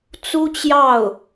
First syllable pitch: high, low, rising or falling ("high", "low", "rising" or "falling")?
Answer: high